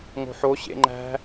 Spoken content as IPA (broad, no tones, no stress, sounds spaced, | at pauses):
ŋ o̤ ħ o ɕ ḛ ŋ͡ǃ æ̤